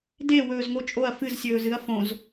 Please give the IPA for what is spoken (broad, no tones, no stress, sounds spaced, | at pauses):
d e w ɵː z ŋ o t͡ʃʼ o ɐ̯ f ɨ z sʲ ɵː z ɨ ɐ̯ f õ z